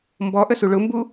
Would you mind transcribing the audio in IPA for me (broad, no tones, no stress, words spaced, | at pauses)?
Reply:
mbɔʔəsu ɭʊmbu